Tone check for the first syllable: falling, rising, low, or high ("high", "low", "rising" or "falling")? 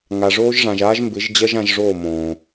low